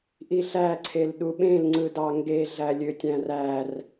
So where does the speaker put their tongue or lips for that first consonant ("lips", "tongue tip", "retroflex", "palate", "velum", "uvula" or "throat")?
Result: throat